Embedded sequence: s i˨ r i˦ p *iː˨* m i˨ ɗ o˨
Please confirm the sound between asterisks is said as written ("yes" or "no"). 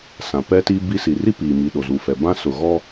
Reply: yes